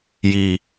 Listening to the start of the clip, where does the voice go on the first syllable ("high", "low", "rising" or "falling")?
low